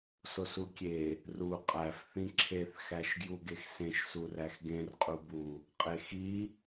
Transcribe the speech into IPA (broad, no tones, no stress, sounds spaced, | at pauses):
s o s u kʲ e | r u qʼ æ f θ ĩ ǁʰ e θ x æ ʃ ɡ j u ɡ e x s ẽ ʃ s u r æ x ɡ ẽ r qʼ u b u | qʼ e x i